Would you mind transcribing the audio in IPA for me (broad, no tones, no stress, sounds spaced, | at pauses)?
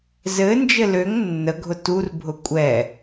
z ɘ n d͡ʒ ɘ l ø ŋ nː ə ɡʱ ʊ t u r bʱ ʊ kʷʼ ɛ